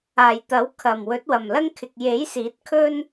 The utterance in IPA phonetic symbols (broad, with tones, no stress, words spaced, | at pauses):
aː˨˩jt̪ɐ˨˥wkʰɐ˨˩m wɵ˨˥t̚wɐ˨˩mlɐ˥ŋkʰɪ˨k̚ je˨˥j siː˨˥t̚kʰɵ˥n